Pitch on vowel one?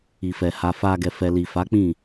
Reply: low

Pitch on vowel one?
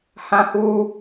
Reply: high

